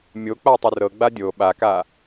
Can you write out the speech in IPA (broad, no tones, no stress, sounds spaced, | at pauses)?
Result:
mʲ o k͡p a tˤ ʏ r ɤ ɡ͡b a dʲ o ɓ a k a